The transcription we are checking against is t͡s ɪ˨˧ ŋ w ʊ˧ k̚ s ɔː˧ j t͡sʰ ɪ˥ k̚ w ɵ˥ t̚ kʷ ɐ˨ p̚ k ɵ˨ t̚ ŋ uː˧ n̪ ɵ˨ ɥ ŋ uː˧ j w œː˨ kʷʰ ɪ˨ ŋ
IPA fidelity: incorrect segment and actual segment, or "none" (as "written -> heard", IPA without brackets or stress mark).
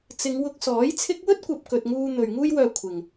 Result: ɔː˧ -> ɔː˨˥